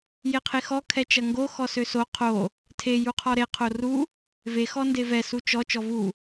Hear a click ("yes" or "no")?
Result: no